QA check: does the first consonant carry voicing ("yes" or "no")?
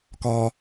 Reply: no